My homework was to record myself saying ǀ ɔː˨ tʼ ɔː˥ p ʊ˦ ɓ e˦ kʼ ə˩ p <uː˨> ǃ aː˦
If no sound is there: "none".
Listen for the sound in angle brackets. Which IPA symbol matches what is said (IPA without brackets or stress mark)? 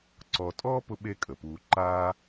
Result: uː˨